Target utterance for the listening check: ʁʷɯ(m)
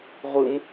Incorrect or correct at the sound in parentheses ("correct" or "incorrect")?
correct